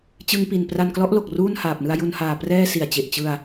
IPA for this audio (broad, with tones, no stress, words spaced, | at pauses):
t͡ɕɯ˧ŋpi˨˩npra˧n klɔ˦˥ʔlo˨˩k̚ ruː˥˩nhaː˨˩p̚nɯ˧a̯ ju˧nhaː˨˩prɛː˥˩ si˨˩a̯t͡ɕe˨˩ʔ t͡ɕɯ˧a̯